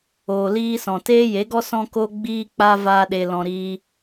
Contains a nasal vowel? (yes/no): yes